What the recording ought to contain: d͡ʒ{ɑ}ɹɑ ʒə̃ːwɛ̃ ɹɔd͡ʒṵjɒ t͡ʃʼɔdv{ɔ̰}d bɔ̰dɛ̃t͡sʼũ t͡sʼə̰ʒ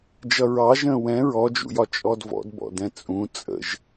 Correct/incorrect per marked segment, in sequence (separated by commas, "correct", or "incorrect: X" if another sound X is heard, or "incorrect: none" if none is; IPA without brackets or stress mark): incorrect: ʌ, correct